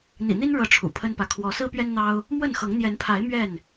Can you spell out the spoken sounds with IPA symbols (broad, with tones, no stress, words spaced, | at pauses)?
n̪ḭ˨˩n̪i˦n ɻɤ˥˨ʈ͡ʂʰṵ˨˩pʰə˦npä˨ kʰwɔ˨˦sɹ̩˦pɥɛ˦nn̪ɑ˦ʊ̯ | mwə˥˨nxɤ˨˦ŋ n̪jɛ˨˦npʰa˨˦ɪ̯ mɥɛ˥˨n